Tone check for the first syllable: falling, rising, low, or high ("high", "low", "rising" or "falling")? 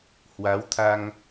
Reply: rising